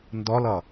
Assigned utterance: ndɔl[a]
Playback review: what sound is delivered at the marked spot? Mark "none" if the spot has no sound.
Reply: ʌ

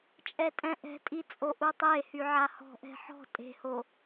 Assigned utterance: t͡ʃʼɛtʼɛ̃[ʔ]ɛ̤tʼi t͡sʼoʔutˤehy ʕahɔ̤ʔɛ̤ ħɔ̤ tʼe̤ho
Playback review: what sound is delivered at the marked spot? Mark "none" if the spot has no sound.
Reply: ʔ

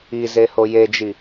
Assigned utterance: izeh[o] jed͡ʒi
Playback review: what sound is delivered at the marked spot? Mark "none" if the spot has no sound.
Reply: o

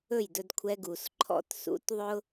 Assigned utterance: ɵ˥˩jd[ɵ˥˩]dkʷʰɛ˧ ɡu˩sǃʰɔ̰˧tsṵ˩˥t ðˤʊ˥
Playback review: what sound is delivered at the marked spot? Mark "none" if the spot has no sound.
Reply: ɵ˧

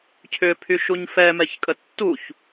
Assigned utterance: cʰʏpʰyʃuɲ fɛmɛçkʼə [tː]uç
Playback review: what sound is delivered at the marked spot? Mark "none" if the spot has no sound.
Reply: tː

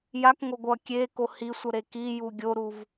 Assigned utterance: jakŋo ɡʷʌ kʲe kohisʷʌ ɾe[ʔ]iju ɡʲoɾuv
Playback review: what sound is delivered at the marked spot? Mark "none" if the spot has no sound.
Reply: k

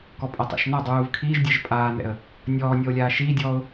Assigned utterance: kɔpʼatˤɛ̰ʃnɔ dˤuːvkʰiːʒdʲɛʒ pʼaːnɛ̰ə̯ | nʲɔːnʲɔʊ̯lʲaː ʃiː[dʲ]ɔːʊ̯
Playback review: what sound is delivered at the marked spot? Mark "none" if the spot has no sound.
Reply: dʲ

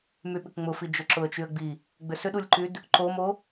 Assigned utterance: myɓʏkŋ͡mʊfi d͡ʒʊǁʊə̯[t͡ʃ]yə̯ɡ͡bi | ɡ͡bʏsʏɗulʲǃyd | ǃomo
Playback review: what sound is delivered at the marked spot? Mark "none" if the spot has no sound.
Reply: t͡ʃ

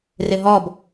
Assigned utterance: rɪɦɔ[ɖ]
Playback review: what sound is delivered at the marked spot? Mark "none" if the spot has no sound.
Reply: b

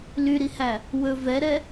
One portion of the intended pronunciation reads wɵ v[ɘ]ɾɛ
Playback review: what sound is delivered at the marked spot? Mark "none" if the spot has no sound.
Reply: ɛ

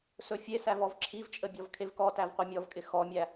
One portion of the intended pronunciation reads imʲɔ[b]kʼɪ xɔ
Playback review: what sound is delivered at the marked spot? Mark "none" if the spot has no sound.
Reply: v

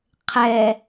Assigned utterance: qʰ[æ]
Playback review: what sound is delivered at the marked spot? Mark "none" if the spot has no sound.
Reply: ɛ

